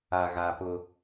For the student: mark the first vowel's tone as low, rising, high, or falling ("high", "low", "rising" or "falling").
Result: low